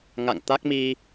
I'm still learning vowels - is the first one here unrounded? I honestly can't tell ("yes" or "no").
yes